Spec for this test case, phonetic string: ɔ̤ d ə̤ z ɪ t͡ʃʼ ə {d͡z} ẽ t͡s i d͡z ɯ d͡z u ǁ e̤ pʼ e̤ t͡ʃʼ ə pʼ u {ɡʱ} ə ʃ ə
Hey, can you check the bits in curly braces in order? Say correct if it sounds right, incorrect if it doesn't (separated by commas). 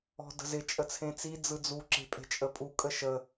incorrect, incorrect